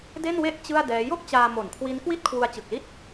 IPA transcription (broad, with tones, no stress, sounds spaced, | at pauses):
d e˥˩ n w e˥˩ ʔ t͡ɕ ɯ˥˩ a̯ d ɛː˦˥ j o˥˩ k̚ t͡ɕ aː˧ m o˨˩ n kʰ w i˦˥ n k w i˥˩ t̚ kʰ w u˧ a̯ t͡ɕ ɯ˨˩ k̚ l i˥˩ t̚